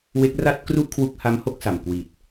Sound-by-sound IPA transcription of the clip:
we˦˥k̚ra˥˩t̚ kru˥˩ʔkʰwu˦˥k̚ha˦˥m ho˦˥k̚sa˨˩mkwi˨˩t̚

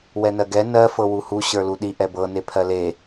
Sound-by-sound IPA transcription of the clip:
wɛnɜɡɛ nɜ fɤwuhu ɕə˞luɗi ʔɛbɤ nepʰɜle

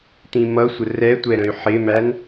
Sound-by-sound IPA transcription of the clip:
t̪ĩmʌsʷə rɛtʷɛɾə̃y̯ ħɪmæn

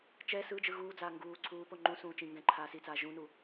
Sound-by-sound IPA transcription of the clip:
t͡ʃɛ sɯd͡ʒɯ ɣuːd͡zaː ŋɡuː ǀʰuːpo ŋ͡ǃũsũː t͡ʃĩ ŋɡɛ̃ǃʰaː sit͡saː ʒũnu

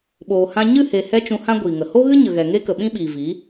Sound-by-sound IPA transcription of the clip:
ɓoː˨hã˧ ɲɨ˦˨he˨hɛ˧ t͡ʃũ˧hã˦ ɡʷiː˨ŋə˨ ho˦ɣɨ˦ɲə˨ɣɛ˨ ŋe˦kə˨ɓĩ˦ɓiː˨ vi˨˦

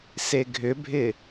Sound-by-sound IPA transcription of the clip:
seɡʱʏbʱɪ

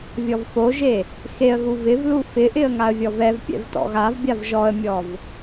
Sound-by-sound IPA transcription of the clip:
vʲɔvfoʒe | xeə̯ɣu vɪvlu fɪʔɪə̯ ŋaə̯vʲɔvɛvpʲɛ̰v tɔ̰ɣavbʲav ʒɔə̯mʲɔv

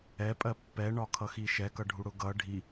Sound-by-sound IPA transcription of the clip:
ɛpʼɜ pːɛɳɒkʰʌxi ʃɛkʌɖʱuɽʊ ɡʌ ɖʱi

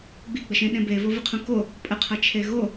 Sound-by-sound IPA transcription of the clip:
ɡ͡biɡ͡bəʃẽ ɗẽbe vovəqʰũko | pʼəqʰʌ t͡ʃʰeɣo

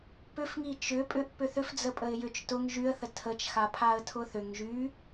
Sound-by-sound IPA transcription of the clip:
pʏfŋi t͡ʃʏ pʼʏʔ pʏθʏf d͡zəpʼəɪ̯jʏt͡ʃ tʊŋ ʒyə̯θə tʰət͡ʃxa pʰaə̯tʰʊθʏŋ ʒy

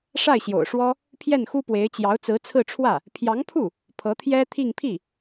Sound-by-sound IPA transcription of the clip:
ʂa˥˩ɪ̯ɕjo̰˨˩ʊ̯ʂwɔ˥ | pʰjɛ˥˩nxu˥pwe˧˥ɪ̯ t͡ɕjɑ˧˥ʊ̯t͡sɹ̩˧˥t͡sʰɹ̩˥˧ʈ͡ʂʰwä˥˩ | pʰjɑ˧˥ŋpʰu˥˩ | pʰɤ˧˥t̪ʰjɛ˥t̪ʰi˥˧ŋ pʰi˥˩

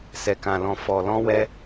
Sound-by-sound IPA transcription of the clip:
sɛ˨kã˨lɔ̃˨ fɔ˨lɔ̃˧wɛ˧

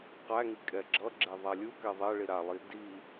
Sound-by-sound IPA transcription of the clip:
qæŋi kʼɛɡ͡ǁʌɡ͡ǁe ðˤalʲukɛ ðˤɛɭi ɾalˠi di

